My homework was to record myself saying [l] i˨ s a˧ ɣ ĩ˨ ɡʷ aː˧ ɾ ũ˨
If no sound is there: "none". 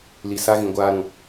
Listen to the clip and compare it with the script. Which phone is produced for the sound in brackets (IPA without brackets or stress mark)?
l